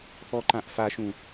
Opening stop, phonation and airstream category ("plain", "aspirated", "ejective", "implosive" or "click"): click